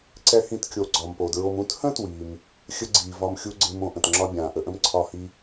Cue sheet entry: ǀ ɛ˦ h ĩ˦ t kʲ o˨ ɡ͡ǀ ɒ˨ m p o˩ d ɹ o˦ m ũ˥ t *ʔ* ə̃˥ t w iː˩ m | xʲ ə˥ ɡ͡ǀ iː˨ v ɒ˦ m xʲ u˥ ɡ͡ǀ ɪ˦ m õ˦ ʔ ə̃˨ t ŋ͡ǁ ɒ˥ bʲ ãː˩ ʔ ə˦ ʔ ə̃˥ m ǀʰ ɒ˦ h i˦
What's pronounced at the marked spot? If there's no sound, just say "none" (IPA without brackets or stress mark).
h